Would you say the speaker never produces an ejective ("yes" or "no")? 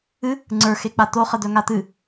yes